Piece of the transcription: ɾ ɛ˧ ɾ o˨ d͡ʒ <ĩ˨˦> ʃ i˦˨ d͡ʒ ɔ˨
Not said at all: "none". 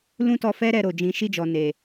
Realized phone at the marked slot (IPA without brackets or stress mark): ĩ˨˦